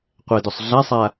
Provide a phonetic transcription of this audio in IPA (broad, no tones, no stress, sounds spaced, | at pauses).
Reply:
qʷ ɛ d o sˤ ɮ a sˤ a